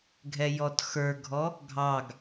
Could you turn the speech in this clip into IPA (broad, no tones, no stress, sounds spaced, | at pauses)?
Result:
ɡʱ ɛ j ɔ t x ə˞ ɡʱ ɔ | ɡʱ ɑ ɡ